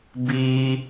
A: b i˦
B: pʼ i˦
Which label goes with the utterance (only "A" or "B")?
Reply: A